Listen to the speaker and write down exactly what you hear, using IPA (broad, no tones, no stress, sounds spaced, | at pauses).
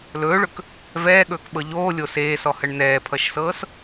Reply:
l ɵː ɭ ɵ k | v ɛː ɠ ɵː k ɓ ɤ ʎ oː lʲ o s eː s ɔ h ə ɳ n̪ ɛː pʰ ʌ ʃ s ɤː s